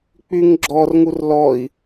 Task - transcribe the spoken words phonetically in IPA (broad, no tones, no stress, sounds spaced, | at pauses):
k͡p y ŋ ɡ͡ǁ ɔ r ŋ u r l ɔ i̯